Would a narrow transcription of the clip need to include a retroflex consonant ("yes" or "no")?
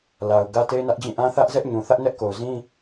no